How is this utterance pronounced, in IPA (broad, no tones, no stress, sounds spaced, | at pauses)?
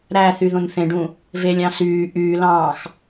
ɾ æ θ y ð õ n θ ẽ ɖ ũ | v e lʲ ɑ̃ s yː ʔ yː l ɑ̃ː x